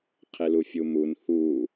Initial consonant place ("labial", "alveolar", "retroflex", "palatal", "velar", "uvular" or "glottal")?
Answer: uvular